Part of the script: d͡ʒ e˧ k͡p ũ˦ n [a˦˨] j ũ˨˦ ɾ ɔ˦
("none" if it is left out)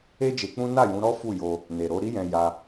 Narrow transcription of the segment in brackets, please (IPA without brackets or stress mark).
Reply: a˦˨